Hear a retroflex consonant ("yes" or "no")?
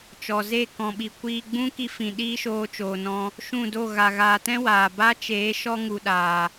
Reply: no